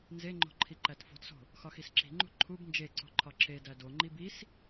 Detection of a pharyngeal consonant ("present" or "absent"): absent